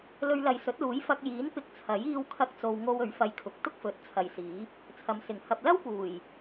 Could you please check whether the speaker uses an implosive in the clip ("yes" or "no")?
no